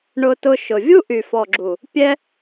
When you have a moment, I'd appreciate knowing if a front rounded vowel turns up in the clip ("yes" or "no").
yes